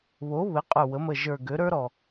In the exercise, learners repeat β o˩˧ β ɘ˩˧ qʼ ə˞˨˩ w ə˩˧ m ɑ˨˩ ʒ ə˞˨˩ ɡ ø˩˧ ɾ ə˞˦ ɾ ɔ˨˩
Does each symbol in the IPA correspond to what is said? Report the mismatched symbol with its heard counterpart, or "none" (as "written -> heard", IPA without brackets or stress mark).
ɑ˨˩ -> ə˨˩